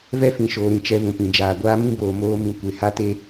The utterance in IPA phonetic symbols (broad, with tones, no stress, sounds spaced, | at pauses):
v ɛ˦ f ĩ˨ ʃ oː˨ ɾ ĩ˨ t͡ʃ ɛ˨ v ũ˨ p ĩ˨ d͡ʒ aː˨ ɡʷ aː˦ m ĩ˦ b oː˨ m oː˦ m ĩ˨ kʷ e˨ h a˦ t e˦